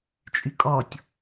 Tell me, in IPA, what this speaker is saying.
t͡ʃʼ y kʼ ɔ tʲ

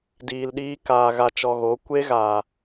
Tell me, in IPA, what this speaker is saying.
d iː˧ l ɗ iː˦ k aː˧ ɣ a˧ t͡ʃ ɔ˧ ɣ o˨˦ kʷ e˦ ɣ aː˨

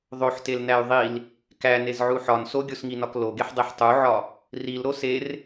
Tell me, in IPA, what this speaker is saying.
ðˤ o ħ t e l n æ y̯ ðˤ i l | k æ n e z ʕ u ħ ɒ n s o ɡʲ o s ŋ i n ɒ k l o ɡ e ħ dˤ e ħ tˤ u ʕ ɒ | r i l ɾ o s e r

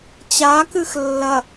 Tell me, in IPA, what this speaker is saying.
t͡ɕ a k ɨ x lː ɐ

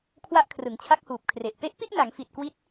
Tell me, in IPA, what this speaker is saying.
kʰ w a˦˥ ʔ kʰ r ɯ˩˦ ŋ t͡ɕʰ a˦˥ k̚ h uː˨˩ p̚ kʰ r e˨˩ ʔ p e˦˥ ʔ p i˥˩ ʔ n a˩˦ ŋ f i˨˩ t̚ k w i˦˥ t̚

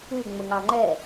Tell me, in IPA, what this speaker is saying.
ʉ ŋ͡m ɵ ŋ ɑ ŋ͡ǃ ɛ

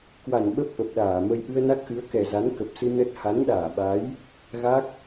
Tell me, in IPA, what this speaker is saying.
k w a˧˩ n ɓ ə˦˥ p̚ ʔ ə˨˩ p̚ ɗ aː˧˩ m ə˧ j ʔ ɨ˧ ə̯ n a˦˥ k̚ ʔ ɨ˨˦ ə̯ k ɛ˨˩ z a˨˦ n k ə˨˩ p̚ s ɨ˧ n ə˦˥ t̚ h a˨˦ n ɗ aː˧˩ ɓ a˨˦ j | ɣ a˦˥ k̚

